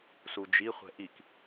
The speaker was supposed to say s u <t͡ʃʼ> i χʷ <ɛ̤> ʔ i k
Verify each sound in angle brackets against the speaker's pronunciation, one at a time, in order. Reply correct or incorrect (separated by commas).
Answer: incorrect, correct